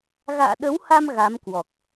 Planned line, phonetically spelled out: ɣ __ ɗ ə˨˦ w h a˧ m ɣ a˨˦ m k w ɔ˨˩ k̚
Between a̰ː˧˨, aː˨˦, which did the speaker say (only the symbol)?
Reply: a̰ː˧˨